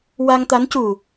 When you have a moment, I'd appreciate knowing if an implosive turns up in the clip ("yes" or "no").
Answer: no